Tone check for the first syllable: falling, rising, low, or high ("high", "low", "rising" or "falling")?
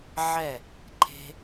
falling